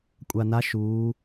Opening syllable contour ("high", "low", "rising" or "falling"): low